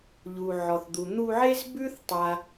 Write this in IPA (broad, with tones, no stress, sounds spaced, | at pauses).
ʎ u˨ ʕ ɔ˨ θ d̪ u˨ n̪ u˧ ʕ e˦ z b ʉ˦ θ tˤ a˦